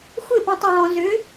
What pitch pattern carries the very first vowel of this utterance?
falling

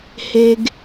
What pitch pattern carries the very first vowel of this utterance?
high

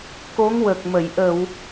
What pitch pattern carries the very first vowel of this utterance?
rising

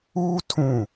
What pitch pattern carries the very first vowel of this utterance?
high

